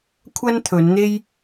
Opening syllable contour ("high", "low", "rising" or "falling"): high